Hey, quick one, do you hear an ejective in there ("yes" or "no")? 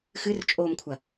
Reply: yes